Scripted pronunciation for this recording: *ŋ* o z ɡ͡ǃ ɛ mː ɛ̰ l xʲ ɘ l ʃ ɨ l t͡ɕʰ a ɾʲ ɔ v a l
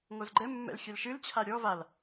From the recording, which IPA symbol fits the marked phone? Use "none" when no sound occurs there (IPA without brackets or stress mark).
ŋ